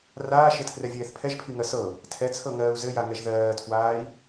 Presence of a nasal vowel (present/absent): absent